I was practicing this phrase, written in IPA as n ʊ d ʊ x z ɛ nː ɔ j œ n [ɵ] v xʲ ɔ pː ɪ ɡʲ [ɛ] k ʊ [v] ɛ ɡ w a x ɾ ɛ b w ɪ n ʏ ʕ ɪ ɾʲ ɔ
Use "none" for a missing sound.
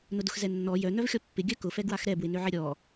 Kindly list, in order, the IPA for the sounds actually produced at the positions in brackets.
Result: œ, œ, f

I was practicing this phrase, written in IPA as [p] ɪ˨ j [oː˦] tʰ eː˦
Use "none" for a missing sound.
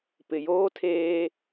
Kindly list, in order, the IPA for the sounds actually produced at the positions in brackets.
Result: p, oː˦

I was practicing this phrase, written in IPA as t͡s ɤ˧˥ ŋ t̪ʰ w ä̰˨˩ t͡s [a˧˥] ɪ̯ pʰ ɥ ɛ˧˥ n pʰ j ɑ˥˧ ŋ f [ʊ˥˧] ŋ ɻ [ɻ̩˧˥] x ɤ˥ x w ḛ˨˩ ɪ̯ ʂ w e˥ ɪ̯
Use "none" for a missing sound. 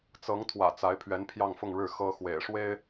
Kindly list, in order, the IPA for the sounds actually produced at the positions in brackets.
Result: a˧˥, ʊ˥˧, ɻ̩˥˩

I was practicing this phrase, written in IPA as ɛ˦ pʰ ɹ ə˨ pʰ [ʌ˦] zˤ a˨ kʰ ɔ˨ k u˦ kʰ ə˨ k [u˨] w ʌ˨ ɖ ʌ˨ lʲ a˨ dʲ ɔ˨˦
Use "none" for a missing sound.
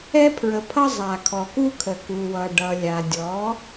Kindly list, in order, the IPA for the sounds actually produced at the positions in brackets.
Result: ʌ˦, u˨

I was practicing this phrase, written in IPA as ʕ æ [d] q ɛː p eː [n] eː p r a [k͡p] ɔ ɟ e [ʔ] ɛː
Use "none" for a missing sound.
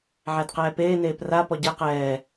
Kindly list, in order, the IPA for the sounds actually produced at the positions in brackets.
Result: d, n, p, q

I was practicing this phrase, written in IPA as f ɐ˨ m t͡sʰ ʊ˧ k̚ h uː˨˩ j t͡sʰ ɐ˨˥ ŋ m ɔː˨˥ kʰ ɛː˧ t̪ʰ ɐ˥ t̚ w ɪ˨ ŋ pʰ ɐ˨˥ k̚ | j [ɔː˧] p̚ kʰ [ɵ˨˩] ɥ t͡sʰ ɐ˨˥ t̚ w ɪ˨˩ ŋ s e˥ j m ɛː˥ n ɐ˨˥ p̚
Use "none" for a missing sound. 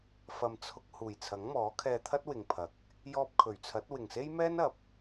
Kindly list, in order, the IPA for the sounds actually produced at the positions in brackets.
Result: ɔː˧, ɵ˨˩

